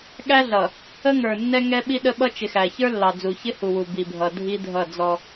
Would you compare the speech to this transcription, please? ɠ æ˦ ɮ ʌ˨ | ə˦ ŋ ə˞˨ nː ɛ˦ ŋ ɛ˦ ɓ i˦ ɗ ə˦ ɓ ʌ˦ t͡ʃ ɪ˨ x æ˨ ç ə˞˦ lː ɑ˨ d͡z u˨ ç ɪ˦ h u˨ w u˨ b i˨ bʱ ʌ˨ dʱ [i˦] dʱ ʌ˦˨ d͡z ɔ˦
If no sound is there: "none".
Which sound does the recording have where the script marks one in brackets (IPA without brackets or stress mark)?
i˦